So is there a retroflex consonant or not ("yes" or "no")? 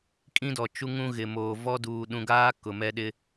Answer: no